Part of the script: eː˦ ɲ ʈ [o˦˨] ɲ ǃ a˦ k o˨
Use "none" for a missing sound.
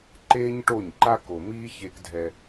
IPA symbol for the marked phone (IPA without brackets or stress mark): o˦˨